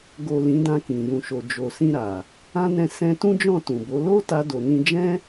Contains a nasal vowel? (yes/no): yes